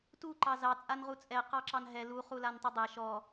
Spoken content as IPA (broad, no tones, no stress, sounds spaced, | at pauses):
t u ǃ ɑ z ɑ t͡sʼ a n ʁ u t͡sʼ ɛ q ɑ ǁ ɑ n ɦ ɛ l u χ u l a n tˤ i dˤ ɛ ʃ ɔ